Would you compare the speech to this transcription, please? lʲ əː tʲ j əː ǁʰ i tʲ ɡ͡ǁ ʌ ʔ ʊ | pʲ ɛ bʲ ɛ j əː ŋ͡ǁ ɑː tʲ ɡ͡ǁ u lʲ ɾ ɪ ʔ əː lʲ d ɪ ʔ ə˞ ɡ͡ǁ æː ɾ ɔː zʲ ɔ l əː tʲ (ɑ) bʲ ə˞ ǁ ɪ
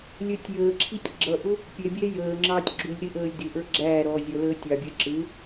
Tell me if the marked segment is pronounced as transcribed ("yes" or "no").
yes